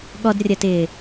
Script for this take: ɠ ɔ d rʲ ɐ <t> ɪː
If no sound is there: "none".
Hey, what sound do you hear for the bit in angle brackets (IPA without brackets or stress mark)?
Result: t